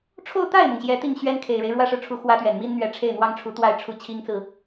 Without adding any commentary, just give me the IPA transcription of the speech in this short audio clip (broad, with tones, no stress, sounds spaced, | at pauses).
ʈ͡ʂʰ o˥˧ ʊ̯ t̪ a˥˩ ɪ̯ m ʊ˩ ŋ ɕ j ɛ˧˥ t̪ i˥˩ ŋ ɕ ɥ ɛ˥ n kʰ e˨˩ ɪ̯ ɻ e˦ ɪ̯ ɻ w ä˥ ʂ ɻ̩˨ ʈ͡ʂʰ u˧˥ x w ä˥ t̪ ɥ ɛ˨˩ n m i˥ n n̪ ɥ ɛ˧˥ ʈ͡ʂʰ e˥˩ ɪ̯ n̪ w ɑ˥ ŋ ʈ͡ʂʰ u˧˥ t̪ w a˥˧ ɪ̯ ʈ͡ʂʰ u˥˩ t͡ɕʰ i˥ ŋ t͡s ɹ̩˨